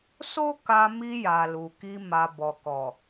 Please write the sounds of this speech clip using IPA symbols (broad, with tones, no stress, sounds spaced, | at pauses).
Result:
s o˦ k a˧ m i˧ j a˨ l u˨ k i˧ m a˨ b ɔ˨ k ɔ˨